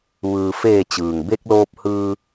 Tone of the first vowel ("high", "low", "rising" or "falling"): low